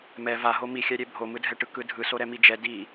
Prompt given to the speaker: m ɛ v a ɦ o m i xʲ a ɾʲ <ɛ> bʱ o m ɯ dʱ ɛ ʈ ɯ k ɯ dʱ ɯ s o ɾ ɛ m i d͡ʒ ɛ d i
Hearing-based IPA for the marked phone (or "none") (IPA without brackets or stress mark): ɛ